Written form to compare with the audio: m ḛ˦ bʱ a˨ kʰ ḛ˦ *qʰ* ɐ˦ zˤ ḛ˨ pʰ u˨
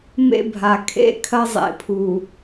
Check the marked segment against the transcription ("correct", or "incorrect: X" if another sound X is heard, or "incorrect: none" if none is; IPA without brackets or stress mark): incorrect: kʰ